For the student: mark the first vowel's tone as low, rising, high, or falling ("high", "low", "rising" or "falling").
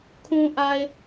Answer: low